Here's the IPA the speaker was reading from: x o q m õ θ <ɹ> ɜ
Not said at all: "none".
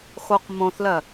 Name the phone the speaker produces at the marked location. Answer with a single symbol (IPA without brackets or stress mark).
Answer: l